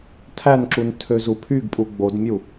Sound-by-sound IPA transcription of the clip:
tʰ æ n ǁ u n tʰ ø z u pʰ y ɡ pʼ u ɡ͡b o d mʲ u

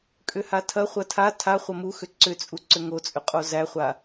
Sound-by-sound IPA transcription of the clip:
kʼ ʏ h a tʰ ɐ χʷ ɐ tʰ a tʰ a χʷ ɐ m u x ʏ ǀ ʏ t͡sʼ u ǀ ʏ ŋ o t͡sʼ ʏ qʼ o z æ χʷ a

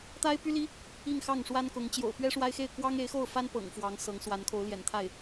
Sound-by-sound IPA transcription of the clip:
t̪ a˥ ɪ̯ p y˥ l i˥ | i˥˧ ŋ x ɑ˥˩ ŋ ʂ w a˥ n k ʊ˧˥ ŋ t͡ɕ j o̰˨˩ ʊ̯ p ɥ ɛ˥ ʂ w a˥ ɪ̯ x e˥˩ ɪ̯ k w ɑ˥ ŋ e˧˥ ɪ̯ x o˥˩ ʊ̯ f a˥ n p ɤ̰˨˩ ŋ f w ɑ˧˥ ŋ s ɤ˧˥ ŋ s w a˧˥ n kʰ o˧˥ ʊ̯ l j ɛ̰˨˩ n t̪ʰ a˥˩ ɪ̯

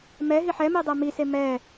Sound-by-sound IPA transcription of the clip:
m ɛ ɦ i ħ ɛ m i dˤ ɛ m i s e m ɛ

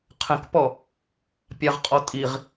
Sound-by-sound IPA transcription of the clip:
qʰ ə̃ k p ɔ | pʲ a ʁ qʼ ɔ tʼ i ʁ

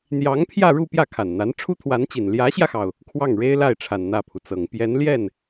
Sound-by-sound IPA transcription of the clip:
n̪ j ɑ˧˥ ŋ pʰ j ä˥˧ ɻ u˥˧ p j ä˥˩ kʰ a˨˩ n n̪ a˧˥ n ʈ͡ʂʰ u˥ t̪ʰ w a˧˥ n t͡ɕ i˨˩ n l j ä˧˥ ɕ j ä˧ x ɑ˩ ʊ̯ | kʰ w ɑ˥˩ ŋ ɻ e˥ ɪ̯ l a˥˩ ɪ̯ ʈ͡ʂʰ a˨˩ n n̪ ä˥˩ pʰ u˩ t͡s ɤ˨˩ ŋ p j ɛ˧˥ n l j ɛ˥˩ n

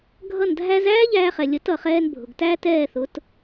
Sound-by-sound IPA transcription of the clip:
ɡʱ ʌ˥˩ n dʱ æ˥ z æː˥ ʎ æː˧ χ ɛ˩ lʲ ə˩˥ t ʌ˩ χ ɛː˧ n bʱ ʊ˩ ɡ t æ˥ t ɛː˥˩ θ ʊ˩˥ t

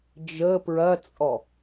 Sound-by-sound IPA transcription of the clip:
d͡ʒ ə p ɹ ɐ t͡sʼ ɔ

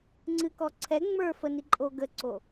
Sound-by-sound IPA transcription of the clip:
ŋ͡ǀ ɨ k ɔ ǀʰ ɛ ŋ͡m ə˞ f ə n i ǃʼ o ɡ ə ǀ o

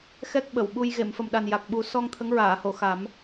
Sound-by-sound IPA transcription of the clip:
x ɛ˦˥ k̚ ɓ ə˨˩˨ w ɓ u˧ j ɣ e˨˩˨ m f ə˨˩ m ɗ a˨˩ n j a˨˩ k̚ ɓ u˨˩˦ s ɔ˧ ŋ t̪ʰ ə˧˥ ŋ ɹ aː˨˩˨ h o˨˩˨ x a˨˩˦ m

